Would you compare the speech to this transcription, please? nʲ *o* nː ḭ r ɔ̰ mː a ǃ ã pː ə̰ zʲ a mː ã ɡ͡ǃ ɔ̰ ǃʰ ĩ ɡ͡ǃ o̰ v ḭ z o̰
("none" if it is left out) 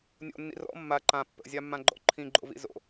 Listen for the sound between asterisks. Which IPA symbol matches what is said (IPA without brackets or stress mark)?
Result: o̰